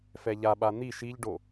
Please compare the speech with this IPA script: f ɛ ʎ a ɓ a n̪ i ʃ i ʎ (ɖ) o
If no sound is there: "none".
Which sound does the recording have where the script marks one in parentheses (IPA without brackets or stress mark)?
ɖ